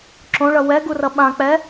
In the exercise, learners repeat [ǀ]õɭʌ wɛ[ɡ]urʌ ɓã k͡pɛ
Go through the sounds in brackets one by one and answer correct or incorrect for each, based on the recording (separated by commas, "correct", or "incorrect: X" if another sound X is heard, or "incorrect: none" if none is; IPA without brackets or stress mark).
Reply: incorrect: ǁ, correct